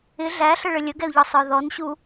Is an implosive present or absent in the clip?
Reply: absent